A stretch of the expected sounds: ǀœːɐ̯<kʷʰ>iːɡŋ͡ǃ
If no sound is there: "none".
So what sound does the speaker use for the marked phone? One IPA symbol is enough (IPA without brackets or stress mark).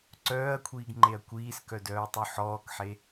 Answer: kʷʰ